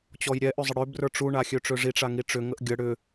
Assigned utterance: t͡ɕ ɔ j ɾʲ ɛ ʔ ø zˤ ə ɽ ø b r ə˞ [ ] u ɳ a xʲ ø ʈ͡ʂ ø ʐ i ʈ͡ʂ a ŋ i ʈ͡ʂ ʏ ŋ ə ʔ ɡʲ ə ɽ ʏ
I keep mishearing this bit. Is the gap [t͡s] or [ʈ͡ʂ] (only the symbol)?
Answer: ʈ͡ʂ